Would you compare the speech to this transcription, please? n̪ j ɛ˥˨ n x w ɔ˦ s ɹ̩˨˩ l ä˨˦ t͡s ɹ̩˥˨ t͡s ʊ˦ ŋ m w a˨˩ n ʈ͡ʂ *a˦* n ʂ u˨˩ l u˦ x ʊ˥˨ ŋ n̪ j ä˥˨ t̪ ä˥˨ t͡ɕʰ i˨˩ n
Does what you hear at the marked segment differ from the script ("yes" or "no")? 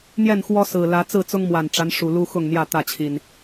no